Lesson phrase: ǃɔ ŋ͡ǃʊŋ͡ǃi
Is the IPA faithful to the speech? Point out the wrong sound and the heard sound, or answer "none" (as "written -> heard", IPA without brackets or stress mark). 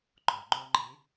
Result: none